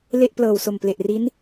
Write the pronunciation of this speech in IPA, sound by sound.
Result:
le˥˩ʔplɤː˨˩w so˨˩mple˨˩ʔri˦˥n

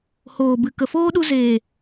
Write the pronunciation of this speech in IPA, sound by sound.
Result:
hoː˨bɨ˨ kə˨foː˦ɗu˧ zeː˨

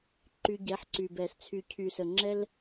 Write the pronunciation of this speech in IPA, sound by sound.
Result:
ǃy˧ɟɛ˨˦ħǀy˨bɛ˨s t͡sʰy˨cʰy˨sə˨ŋ͡ǁɛ˦l

